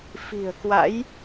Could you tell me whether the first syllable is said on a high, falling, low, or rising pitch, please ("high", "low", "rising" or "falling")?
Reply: low